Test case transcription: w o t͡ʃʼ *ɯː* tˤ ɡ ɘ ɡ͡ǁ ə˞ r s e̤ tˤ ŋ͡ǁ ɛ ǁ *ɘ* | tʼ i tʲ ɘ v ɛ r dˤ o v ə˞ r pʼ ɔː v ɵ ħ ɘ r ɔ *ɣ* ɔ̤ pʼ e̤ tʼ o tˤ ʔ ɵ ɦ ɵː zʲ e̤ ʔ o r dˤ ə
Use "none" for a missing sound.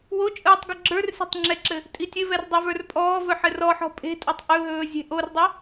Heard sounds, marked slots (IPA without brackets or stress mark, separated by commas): ɯː, ɘ, ħ